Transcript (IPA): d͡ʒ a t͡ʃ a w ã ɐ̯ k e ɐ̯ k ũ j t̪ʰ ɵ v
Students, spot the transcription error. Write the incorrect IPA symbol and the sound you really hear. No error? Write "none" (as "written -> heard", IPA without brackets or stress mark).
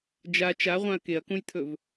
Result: w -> ʁʷ